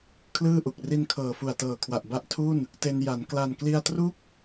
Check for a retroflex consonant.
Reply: absent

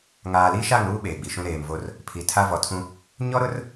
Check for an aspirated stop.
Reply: present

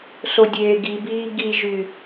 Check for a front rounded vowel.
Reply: present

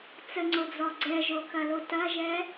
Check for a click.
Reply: present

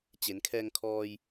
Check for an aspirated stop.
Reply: present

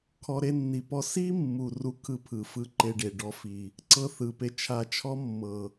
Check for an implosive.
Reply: absent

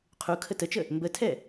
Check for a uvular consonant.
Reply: present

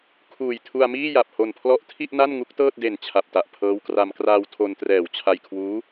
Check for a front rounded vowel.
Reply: absent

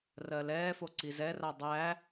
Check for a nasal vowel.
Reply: absent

